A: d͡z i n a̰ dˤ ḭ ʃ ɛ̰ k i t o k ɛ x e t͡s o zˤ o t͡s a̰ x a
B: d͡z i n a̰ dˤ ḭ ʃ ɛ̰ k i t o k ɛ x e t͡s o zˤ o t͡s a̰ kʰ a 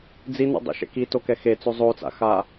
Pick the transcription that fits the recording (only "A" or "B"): A